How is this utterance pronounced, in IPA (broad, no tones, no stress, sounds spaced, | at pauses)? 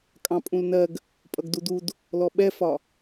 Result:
kʼ ɑ̃ pʼ ũ l n ɜ ɡ | pʼ ʌ ɡ d u d u d | l ɔ ɓ ɛ f ɒ